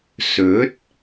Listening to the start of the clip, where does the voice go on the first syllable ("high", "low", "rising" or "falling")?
rising